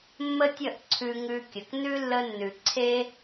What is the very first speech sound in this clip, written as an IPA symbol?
mː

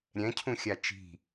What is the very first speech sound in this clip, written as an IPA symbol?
ɾʲ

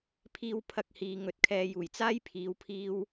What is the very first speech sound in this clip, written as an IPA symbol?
pʰ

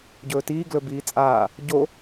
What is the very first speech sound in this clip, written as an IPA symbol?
ɟ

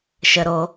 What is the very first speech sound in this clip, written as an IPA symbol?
ʃ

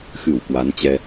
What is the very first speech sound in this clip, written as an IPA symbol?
x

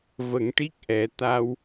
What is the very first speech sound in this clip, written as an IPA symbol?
v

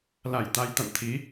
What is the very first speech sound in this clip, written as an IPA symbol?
l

